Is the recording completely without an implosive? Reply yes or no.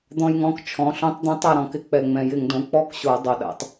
no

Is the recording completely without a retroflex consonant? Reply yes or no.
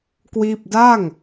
yes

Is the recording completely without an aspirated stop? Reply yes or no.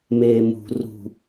yes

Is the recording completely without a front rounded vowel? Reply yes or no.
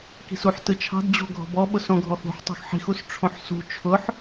yes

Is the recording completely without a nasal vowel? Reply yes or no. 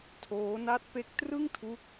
yes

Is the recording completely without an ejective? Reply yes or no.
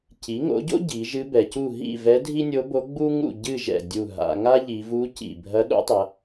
yes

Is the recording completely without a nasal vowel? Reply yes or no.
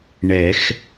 yes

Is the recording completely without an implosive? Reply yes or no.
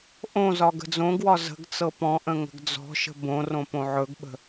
no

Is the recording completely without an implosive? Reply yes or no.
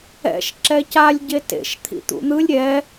yes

